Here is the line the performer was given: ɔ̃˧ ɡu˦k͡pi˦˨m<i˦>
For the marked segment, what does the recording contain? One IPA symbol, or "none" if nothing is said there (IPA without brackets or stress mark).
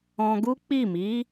i˨˦